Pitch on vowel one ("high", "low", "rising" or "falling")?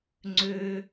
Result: high